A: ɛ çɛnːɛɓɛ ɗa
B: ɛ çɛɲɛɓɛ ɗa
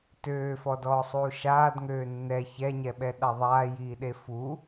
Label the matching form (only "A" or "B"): B